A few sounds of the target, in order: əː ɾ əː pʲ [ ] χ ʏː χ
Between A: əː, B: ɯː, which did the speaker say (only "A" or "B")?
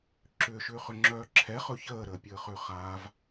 A